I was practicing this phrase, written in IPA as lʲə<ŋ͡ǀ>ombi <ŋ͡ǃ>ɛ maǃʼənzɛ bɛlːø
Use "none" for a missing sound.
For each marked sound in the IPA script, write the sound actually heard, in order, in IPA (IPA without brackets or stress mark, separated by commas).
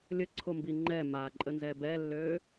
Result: ǀʰ, ŋ͡ǃ